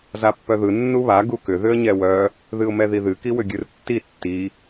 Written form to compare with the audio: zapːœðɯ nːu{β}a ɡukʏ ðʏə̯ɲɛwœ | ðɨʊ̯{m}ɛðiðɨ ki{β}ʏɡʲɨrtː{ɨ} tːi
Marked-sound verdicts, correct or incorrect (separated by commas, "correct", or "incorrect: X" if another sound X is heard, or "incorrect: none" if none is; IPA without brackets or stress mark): correct, correct, incorrect: w, incorrect: i